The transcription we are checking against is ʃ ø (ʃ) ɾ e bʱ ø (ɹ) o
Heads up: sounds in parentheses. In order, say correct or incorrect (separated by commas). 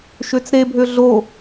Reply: incorrect, incorrect